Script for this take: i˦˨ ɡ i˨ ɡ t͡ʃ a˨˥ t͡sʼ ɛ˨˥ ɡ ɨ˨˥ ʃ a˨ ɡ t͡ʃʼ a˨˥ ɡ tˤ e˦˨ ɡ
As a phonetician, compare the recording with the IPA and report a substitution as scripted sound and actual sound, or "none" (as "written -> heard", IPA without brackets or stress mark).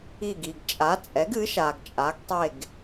t͡ʃ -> t͡ʃʼ